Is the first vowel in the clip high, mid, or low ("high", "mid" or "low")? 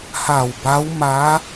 low